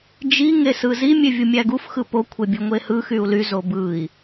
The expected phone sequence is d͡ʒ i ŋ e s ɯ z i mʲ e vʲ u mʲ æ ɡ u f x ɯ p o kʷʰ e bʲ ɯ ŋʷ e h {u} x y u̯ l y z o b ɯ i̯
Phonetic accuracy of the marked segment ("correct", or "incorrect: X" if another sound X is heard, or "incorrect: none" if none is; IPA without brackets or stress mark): incorrect: ɯ